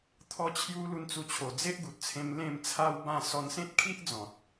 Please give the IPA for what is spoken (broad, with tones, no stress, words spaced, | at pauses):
t̪ʰɔ˧t͡ɕʰju˧ lu˧nt͡su˧t͡ɕʰo˨˩ d͡ze˦ʔɡu˨t̚t͡sʰẽ˧m lẽ˥˧mt͡sʰa˦wbã˥˧ sɔ˧nsẽ˦t̚kʰi˦ʔ d͡zɔ̃˨t̚